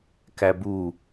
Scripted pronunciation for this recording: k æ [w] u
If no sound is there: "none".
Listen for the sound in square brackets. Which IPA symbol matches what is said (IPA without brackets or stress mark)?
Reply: b